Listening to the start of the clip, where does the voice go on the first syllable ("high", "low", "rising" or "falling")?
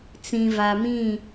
low